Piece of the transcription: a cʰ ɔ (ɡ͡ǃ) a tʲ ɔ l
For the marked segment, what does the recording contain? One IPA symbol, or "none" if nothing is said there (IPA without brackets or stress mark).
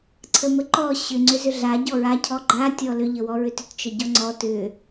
ɡ͡ǃ